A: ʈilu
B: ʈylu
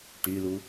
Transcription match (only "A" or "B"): B